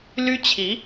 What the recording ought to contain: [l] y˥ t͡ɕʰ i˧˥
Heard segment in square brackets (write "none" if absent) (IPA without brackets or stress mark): l